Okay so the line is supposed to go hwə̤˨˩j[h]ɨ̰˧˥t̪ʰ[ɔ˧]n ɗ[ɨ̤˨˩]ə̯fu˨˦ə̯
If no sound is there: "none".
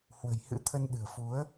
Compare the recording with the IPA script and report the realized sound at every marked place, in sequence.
h, ə˧, ɨ̤˨˩

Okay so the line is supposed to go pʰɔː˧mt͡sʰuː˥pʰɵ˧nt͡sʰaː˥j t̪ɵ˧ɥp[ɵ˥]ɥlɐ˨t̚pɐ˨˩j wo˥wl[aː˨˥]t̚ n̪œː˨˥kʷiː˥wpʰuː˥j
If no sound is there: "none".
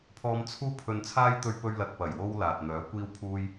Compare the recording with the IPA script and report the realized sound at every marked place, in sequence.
ɵ˧, aː˨

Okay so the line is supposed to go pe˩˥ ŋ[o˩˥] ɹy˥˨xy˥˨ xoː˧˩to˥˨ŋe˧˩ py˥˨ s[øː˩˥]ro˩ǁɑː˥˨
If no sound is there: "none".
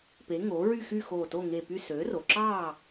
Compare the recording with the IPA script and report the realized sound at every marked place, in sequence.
o˩˥, øː˩˥

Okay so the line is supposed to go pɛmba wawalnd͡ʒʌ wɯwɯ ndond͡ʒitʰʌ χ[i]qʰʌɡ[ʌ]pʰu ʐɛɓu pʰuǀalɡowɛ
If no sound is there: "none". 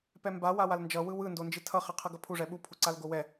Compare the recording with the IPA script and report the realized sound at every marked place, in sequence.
e, ʌ

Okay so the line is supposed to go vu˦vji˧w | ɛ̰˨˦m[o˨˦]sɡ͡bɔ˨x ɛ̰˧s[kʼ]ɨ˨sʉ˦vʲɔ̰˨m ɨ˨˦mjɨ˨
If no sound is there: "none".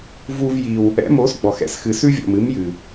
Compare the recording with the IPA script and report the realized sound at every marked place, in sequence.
o˨˦, x

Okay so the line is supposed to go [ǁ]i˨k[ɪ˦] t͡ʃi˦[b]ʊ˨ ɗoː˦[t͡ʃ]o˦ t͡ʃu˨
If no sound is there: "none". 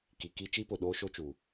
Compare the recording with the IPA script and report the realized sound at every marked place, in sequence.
k, i˦, p, ʃ

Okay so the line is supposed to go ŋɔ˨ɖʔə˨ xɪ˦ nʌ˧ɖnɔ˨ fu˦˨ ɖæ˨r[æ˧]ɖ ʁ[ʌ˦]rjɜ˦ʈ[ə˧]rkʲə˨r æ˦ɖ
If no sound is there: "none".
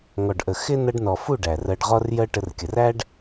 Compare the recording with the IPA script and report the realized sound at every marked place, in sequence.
ɜ˧, ɔ˦, ə˧

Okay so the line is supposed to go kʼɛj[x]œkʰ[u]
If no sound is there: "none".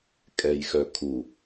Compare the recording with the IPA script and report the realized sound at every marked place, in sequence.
x, u

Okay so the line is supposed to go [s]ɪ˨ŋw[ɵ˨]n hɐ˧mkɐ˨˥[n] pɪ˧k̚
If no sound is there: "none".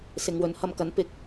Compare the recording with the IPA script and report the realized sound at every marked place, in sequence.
s, ɵ˨˥, n

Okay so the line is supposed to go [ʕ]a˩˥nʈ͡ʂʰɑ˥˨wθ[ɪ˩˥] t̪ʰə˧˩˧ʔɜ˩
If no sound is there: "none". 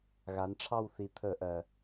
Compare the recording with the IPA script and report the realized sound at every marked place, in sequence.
ɣ, i˩˥

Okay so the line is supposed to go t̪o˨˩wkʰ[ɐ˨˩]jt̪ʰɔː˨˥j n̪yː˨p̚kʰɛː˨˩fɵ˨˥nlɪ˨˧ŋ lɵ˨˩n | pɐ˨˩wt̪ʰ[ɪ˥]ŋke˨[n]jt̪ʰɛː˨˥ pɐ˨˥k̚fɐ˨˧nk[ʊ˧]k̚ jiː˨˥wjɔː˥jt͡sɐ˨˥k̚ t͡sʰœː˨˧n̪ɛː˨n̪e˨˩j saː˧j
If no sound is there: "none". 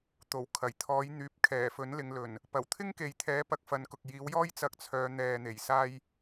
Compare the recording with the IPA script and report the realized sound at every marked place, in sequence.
ɐ˨˩, ɪ˥, none, ʊ˨

